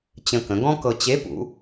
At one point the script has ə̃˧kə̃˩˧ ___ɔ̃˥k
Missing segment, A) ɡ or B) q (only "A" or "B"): A